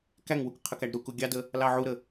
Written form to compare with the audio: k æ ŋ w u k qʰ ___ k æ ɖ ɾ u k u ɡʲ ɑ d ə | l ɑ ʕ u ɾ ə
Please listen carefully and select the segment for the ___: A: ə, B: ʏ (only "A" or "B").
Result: A